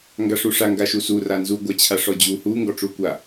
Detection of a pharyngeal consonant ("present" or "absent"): absent